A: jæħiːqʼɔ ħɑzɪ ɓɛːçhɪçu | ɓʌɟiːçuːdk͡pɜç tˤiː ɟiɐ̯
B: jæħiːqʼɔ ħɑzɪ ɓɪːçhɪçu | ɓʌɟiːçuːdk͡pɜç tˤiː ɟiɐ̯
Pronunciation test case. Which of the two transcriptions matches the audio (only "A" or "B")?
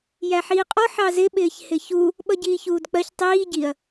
B